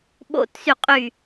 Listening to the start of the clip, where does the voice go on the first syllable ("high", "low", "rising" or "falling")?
falling